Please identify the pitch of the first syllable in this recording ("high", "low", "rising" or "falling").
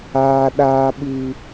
high